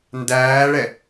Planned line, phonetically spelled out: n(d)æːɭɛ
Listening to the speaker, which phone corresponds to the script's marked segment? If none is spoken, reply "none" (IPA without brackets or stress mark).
d